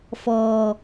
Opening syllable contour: low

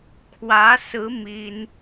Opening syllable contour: rising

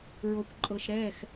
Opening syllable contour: low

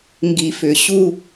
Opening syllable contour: low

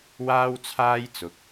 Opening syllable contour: high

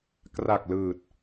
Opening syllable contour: low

